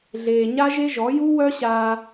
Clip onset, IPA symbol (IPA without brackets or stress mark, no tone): ɮ